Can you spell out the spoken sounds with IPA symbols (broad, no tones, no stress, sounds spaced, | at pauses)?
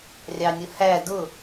rʲ ɑ nʲ ʊ h æ d ʊ